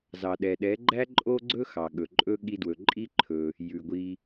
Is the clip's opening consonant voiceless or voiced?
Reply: voiced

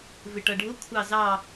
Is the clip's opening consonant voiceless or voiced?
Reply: voiced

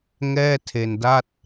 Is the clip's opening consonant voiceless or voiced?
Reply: voiced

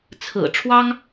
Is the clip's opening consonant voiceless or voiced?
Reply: voiceless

